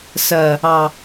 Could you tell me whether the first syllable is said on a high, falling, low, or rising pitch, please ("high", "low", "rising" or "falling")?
low